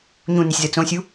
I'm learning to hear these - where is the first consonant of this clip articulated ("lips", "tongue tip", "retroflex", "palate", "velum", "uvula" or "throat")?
palate